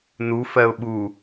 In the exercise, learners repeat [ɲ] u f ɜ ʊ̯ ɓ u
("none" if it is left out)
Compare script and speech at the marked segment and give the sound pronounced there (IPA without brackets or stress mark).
n